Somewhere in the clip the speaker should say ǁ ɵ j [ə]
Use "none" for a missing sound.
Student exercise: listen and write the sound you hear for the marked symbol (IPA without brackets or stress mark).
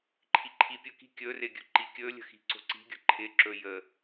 ə